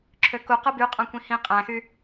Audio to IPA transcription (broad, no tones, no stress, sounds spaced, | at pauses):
ǁʰ ø k u q ɯ b y qʼ ɑ̃ kʷ ĩ h ĩ qʼ æ̃ x y